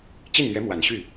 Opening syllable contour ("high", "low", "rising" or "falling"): falling